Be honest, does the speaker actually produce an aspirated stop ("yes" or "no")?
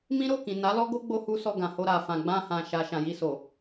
no